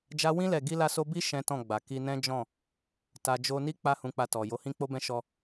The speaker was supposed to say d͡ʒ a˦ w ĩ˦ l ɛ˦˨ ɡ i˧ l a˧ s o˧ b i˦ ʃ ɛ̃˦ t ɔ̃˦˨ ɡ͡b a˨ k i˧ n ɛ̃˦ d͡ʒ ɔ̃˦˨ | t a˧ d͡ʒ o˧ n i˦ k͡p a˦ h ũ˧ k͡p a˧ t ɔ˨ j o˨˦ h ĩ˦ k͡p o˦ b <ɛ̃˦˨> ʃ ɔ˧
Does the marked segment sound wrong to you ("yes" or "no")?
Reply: yes